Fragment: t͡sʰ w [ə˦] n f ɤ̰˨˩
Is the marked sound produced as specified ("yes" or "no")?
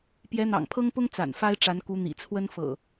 yes